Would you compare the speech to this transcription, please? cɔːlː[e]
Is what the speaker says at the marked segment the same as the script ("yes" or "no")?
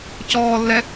no